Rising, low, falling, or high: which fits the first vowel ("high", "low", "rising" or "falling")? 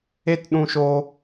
high